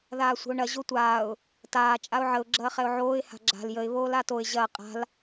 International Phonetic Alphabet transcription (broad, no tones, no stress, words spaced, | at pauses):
ðaːsʷə̤ʊ̯ɳɐ ʑotʷaːʊ̯ | taː t͡ʃʼaʊ̯ʕəʊ̯ ɡ͡ǁɐːχɛʊ̯ʕoːɪ̯ ha̤ɡ͡ǁa̤l jəɪ̯ βoːlatoɪ̯ ʑɐː qʼa̤l